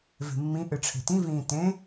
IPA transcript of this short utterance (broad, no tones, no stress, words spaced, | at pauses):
ve̤mːĩ ʔɨʈ͡ʂʰe̤tĩ vĩːtẽ